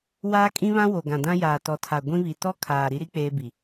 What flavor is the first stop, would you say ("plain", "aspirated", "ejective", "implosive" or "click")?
ejective